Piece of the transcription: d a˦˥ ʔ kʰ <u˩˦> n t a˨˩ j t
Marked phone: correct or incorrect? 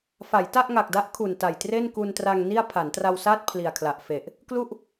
incorrect